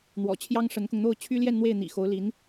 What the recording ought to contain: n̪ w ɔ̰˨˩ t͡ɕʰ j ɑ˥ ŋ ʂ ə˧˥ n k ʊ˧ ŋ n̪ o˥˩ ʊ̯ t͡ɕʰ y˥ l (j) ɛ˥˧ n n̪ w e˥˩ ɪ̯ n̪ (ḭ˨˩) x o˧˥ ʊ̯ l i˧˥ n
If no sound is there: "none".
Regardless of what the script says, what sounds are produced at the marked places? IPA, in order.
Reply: j, ḭ˨˩

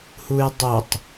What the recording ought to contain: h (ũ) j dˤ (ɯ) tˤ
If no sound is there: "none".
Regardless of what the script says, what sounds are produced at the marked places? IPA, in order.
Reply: u, u

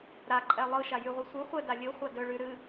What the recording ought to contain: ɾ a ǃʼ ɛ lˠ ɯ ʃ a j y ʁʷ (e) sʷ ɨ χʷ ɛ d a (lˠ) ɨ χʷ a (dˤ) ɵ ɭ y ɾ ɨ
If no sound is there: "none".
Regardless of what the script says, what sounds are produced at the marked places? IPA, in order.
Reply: ɨ, lʲ, d

